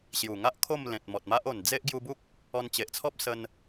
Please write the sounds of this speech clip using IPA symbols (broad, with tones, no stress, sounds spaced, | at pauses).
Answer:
ɕ j u˨˩ ŋ a˦ ʔ kʰ o˥˧ m l ẽ˨ t̚ m ɔ˨ t̚ m a˦ ʔ o˨˩ n d͡z e˦ ʔ ɡ j u˧ b u˦ k̚ | ɔ˧ n t͡ɕ e˨ ʔ t͡sʰ ɔ˦ p̚ s ə˧ n